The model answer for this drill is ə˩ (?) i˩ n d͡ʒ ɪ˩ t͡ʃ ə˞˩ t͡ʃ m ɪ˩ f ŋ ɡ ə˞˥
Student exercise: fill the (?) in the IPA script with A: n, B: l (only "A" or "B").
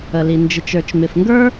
B